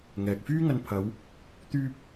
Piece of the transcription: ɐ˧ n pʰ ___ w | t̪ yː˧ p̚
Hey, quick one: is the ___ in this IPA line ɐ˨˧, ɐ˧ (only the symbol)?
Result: ɐ˨˧